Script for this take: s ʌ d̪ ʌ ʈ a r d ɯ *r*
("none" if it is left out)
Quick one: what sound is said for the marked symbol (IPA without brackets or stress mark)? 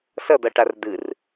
r